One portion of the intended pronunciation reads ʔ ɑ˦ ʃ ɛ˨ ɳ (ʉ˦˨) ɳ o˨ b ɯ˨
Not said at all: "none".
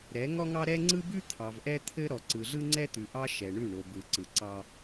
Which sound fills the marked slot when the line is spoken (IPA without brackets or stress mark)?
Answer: ʉ˦˨